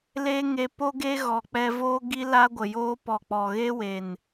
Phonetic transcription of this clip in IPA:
l e˦ ŋ e˧ p o˦ ɡ e˦ ɣ ɔ˨ k͡p ɛ˧ v oː˦ ɡ i˦ l a˦ ɡʷ ə˨ j oː˦ p ɔ˨ k͡p ɔ˨ ɣ e˦ w e˨ n

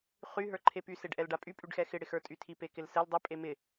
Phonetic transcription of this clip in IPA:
χ y ɦ ə˞ ǃʰ e p y s e ɖ ʔ ɛ l ɖ a pʼ y pʼ y ɖ x ɛ x ɪ ɽ ɪ x ə˞ tʼ y tʰ i p e k ɪ l s ɛ l dˤ ɪ pʼ e m ɪ

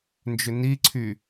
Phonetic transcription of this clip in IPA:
n d͡ʒ ʏ n i ǀʰ y

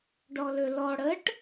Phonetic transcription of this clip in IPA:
ɖ ɔ l ø l ɔ ɽ ə ʈ

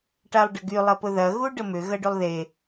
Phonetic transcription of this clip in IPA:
ʈ a lˠ ɖ ɐ ɡ y lˠ ɐ p ʊ ð ɐ ɣ u ɖ ə m ʏ ɣ ɐ ɖ y lˠ ð e

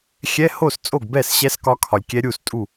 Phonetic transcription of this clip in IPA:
xʲ ɛ˧˥˧ h o˥˩ s t͡sʼ o˥˩ ɡ b ɛ˥˩ s ɕ ɛ˧˥ s k ɒ˧˥ kʰ ɒ˨ lʲ kʲ ɛ˧˥ ɾʲ u˥˩ s tʼ u˥˩

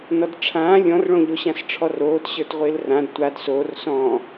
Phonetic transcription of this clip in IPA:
n ɔ d ʈ͡ʂʰ ãː lʲ ɔ̃ r ɭ õ ʎ o ɕ ã s ʈ͡ʂʰ ɔ r oː t ɕ ə˞ t ʁʷ ɪː l r ã d tʷ a d s oː r s ɔ̃ː

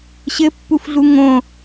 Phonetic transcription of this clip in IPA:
ɕ ɘ pː u f ɮ u ŋ õ

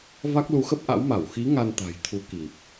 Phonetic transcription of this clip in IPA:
v a˦˥ k̚ l u˨˦ x ə˦˥ p̚ ʔ a̰˧˥ w m a˧˩ w x i˨˦ ŋ a˧ n t̪ a̤˨˩ j t̪ʰ u˨˦ k i˨˩ p̚

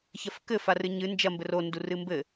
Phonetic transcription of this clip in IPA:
ç ɐ f k ɘ f a r ɨ ɲ ɨ n d͡ʒ ɐ m b ɘ r o n d u r ɨ m b ɘ

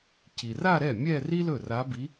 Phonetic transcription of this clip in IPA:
c i˨ r a˥˧ ɾ ɛ˥˩ mʲ ɛ˥˧ r i˥ l ɵ˥˩ r a˧˥ b i˧˥

